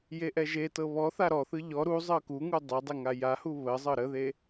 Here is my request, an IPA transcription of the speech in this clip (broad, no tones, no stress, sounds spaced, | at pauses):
j e ʔ ɛ ʒ e t ɤ β ɔ θ a ɾ ɔ θ ɯ ʎ ɔ ɾ u zˤ ɤ k u ŋ u dˤ ɛ dˤ e ŋ a j a h u β ə zˤ ɤ ɾ ə ð e